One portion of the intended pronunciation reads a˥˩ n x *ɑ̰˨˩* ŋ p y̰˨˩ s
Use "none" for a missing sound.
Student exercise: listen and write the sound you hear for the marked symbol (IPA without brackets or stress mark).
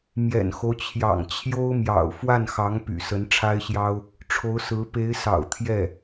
ɑ˧˥